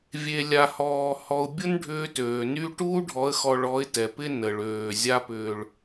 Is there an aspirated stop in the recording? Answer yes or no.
no